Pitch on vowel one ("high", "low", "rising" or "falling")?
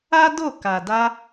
high